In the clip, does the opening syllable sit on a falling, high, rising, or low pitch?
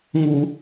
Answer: low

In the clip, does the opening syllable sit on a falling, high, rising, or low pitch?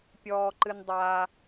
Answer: low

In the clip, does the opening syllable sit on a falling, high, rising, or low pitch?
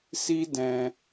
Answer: high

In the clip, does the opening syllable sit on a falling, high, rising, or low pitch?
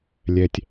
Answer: low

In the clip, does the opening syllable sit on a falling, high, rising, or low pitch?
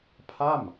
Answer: falling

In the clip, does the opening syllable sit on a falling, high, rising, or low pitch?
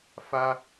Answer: high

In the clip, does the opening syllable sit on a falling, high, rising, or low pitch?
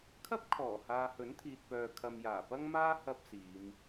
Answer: high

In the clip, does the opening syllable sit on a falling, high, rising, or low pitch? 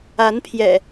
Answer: rising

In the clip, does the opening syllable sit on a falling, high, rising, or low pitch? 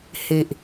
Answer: low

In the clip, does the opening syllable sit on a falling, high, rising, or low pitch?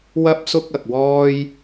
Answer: high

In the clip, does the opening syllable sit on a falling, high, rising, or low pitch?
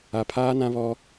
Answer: low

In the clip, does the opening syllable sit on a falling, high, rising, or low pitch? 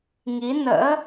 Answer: rising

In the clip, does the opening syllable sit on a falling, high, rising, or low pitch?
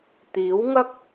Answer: rising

